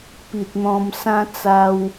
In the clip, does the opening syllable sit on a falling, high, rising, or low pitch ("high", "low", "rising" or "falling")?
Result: low